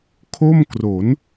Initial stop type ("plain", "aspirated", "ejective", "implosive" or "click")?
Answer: aspirated